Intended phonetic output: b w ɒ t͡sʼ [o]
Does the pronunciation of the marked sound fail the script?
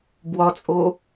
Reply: no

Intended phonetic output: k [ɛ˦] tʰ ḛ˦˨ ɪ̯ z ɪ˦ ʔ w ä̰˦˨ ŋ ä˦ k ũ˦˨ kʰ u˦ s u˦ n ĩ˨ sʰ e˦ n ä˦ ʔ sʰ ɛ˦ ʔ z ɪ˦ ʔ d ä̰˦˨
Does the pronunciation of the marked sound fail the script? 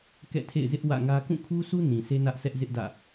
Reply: yes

